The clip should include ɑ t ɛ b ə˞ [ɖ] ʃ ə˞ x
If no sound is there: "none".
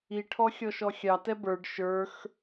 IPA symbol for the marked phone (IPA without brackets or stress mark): ɖ